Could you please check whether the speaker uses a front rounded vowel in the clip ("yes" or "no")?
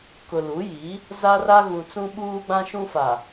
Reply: no